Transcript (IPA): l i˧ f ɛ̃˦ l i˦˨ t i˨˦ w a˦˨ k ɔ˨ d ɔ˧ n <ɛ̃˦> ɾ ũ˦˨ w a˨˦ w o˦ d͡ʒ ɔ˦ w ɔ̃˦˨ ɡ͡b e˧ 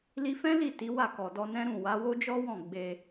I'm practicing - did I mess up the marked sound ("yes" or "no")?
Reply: no